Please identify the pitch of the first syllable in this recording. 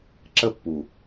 falling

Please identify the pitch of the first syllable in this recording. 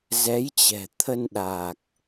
rising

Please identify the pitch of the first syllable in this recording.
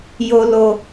low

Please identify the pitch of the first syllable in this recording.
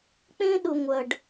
high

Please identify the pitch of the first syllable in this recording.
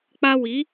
high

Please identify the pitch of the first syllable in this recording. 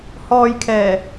low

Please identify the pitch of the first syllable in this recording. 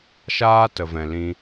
high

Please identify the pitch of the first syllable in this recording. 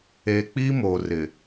low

